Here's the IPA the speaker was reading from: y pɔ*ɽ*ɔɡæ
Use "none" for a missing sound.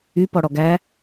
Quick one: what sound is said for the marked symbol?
ɽ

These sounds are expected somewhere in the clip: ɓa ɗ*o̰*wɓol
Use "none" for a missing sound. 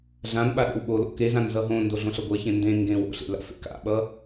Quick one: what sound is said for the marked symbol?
o̰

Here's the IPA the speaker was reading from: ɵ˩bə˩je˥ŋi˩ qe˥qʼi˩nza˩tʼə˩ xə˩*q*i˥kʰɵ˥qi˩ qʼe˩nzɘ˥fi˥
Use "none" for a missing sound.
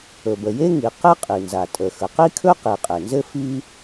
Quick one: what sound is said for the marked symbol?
q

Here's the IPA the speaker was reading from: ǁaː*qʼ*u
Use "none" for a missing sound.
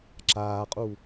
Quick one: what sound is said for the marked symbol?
qʼ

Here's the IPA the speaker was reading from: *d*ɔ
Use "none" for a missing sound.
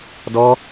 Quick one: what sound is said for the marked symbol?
d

